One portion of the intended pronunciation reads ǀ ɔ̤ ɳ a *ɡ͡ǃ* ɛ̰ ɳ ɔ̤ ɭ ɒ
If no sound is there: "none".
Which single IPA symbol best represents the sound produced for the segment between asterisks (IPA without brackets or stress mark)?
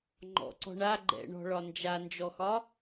ɡ͡ǃ